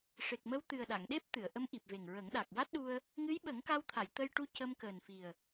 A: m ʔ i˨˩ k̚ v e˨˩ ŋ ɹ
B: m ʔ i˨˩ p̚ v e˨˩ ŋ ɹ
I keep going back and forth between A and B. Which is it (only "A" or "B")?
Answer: B